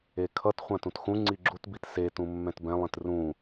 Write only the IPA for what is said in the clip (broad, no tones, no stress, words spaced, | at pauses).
ekʰʌt χʷãtũtxũ ŋ͡ǀiɡ͡ǁutbit setũ mːɛ̃tbɛ̃lˠĩt rũ